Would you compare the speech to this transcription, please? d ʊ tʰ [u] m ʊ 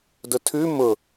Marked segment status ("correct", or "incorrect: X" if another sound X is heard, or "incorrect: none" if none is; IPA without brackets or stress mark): incorrect: ʉ